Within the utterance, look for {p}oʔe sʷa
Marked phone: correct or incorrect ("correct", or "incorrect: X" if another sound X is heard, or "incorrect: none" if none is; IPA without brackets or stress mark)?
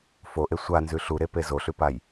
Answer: incorrect: f